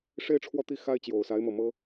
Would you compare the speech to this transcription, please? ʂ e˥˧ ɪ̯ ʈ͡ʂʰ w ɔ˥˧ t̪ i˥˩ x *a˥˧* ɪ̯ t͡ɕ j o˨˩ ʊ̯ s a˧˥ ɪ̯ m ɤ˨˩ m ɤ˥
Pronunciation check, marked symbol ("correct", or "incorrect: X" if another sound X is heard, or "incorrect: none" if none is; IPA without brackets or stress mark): incorrect: a˥